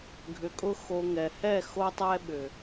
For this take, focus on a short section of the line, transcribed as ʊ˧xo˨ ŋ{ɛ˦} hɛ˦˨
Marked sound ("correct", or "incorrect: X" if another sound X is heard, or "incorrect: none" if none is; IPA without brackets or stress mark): incorrect: ɛ˨